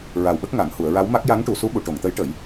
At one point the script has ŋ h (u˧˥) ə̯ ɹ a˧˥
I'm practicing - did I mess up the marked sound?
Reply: yes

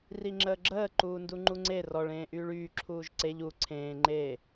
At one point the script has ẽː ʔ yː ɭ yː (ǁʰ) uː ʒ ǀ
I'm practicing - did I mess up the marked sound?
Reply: no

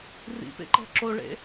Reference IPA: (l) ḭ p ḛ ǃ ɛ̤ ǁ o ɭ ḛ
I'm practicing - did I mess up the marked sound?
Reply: yes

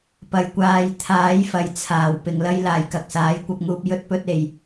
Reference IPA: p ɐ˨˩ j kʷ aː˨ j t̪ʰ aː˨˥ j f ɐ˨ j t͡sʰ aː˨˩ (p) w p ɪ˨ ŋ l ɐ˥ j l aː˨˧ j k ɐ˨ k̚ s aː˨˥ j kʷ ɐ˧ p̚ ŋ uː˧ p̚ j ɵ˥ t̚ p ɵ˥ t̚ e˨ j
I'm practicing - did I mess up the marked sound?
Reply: yes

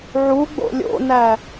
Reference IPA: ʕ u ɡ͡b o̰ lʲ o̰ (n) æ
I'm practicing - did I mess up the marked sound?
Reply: no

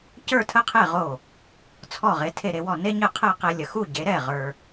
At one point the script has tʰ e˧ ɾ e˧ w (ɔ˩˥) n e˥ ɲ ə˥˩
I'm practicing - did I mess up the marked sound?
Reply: yes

